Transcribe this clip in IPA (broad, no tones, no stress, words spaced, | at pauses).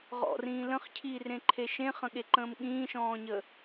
ʁɔ̰rĩː lə̃χcʰiːrẽǃʰe ʃẽχə̃ɠeǃə̃ːm ɠĩːʃɔ̃ːɲə